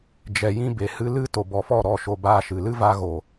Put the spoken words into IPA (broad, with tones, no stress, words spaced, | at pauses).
d͡ʒɛ˨ jĩ˧ be˨hɨ˧lɨ˦ to˨bɔ˨fɔ˦˨ ɾɔ˦˨ʃo˧baː˧ʃɨ˨ lɨ˦va˧ɣo˨